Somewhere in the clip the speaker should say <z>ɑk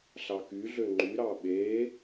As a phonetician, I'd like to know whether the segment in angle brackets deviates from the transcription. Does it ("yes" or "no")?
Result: yes